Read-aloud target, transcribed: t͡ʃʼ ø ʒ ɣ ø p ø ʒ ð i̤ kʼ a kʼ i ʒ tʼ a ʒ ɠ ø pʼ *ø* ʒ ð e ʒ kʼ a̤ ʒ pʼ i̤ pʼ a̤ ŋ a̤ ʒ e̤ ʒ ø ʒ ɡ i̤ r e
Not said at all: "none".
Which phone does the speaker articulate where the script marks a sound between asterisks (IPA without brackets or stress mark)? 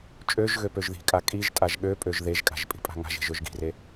ø